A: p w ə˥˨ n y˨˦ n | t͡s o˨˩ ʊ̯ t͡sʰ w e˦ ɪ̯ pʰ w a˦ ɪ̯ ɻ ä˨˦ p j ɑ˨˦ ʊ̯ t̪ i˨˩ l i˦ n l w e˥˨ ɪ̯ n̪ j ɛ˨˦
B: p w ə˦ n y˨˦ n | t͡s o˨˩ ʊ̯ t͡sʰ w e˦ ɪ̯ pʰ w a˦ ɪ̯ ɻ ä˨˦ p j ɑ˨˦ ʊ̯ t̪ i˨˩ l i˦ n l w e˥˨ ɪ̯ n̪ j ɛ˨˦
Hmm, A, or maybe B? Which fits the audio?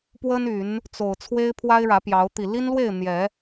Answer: B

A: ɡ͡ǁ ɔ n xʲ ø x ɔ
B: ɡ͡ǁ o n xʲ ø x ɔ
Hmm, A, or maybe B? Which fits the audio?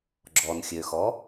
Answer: A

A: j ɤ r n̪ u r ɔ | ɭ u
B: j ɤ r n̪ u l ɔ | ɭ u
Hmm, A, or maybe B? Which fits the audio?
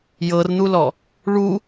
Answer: B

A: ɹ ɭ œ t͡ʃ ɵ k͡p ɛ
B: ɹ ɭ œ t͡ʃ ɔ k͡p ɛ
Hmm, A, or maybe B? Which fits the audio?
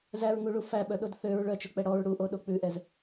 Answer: A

